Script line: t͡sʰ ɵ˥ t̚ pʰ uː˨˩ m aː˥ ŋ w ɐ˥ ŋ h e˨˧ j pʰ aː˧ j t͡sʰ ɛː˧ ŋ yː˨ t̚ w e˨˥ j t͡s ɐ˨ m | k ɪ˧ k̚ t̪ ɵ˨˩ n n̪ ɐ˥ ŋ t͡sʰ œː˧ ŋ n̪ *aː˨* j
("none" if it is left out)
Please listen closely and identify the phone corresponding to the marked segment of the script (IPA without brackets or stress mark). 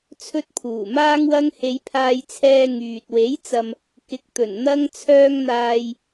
aː˨